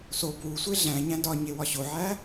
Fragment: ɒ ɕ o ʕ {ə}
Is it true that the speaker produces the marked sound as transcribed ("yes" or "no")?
no